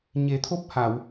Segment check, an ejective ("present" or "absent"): absent